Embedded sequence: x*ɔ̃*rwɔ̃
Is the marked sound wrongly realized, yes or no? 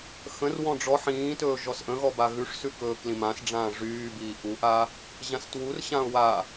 yes